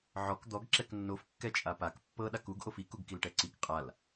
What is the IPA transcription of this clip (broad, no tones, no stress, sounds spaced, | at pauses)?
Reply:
ʕ ɔ k d̪ ɔ ɡ ǁ ɛ k nː o f kː ɛ t͡ʃʼ a p a k pː ɤ ɗ a k u ɡ ʔ o f i k u ɡ k i l ʈ ɛ ǀ i k qʼ a l